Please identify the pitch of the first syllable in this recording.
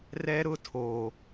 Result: high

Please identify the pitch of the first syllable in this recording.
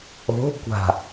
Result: rising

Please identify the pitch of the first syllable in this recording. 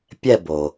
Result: falling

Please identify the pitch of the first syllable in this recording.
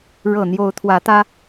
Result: low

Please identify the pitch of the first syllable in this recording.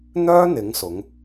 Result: high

